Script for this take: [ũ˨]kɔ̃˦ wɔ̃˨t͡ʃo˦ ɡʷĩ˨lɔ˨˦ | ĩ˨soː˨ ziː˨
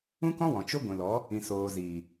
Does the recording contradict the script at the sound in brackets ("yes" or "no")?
yes